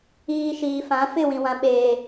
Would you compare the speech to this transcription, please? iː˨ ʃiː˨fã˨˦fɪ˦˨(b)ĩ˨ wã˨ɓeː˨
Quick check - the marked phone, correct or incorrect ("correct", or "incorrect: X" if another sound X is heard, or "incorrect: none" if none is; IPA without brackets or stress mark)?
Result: incorrect: w